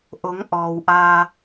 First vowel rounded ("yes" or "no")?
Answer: yes